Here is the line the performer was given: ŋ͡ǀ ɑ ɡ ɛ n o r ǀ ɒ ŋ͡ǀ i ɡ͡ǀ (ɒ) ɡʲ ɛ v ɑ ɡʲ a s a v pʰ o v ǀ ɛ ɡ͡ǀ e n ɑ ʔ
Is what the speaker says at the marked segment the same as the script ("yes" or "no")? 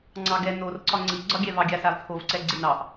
yes